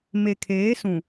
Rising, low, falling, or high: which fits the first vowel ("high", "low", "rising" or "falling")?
low